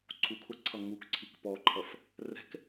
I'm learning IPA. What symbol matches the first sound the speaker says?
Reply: ǀʰ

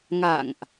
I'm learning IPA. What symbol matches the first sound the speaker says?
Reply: ŋ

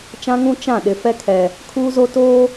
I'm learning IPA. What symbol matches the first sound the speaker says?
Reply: t͡ʃ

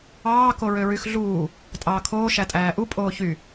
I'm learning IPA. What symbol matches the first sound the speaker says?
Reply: ɑː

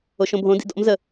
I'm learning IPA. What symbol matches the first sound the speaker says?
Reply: o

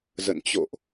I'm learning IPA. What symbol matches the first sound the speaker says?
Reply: z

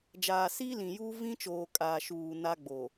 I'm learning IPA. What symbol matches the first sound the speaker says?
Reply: d͡ʒ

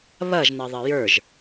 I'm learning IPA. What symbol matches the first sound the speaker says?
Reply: β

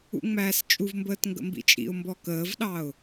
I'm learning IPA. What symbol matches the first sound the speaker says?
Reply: ṵ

